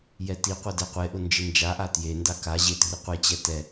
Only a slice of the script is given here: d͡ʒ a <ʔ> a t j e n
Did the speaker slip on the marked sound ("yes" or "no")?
no